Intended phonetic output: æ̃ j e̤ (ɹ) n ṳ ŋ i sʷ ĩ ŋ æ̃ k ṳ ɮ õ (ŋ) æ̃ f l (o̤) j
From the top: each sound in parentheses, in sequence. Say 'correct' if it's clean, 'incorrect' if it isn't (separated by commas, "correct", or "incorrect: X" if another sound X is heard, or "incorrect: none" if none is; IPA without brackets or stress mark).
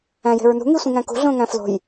correct, correct, correct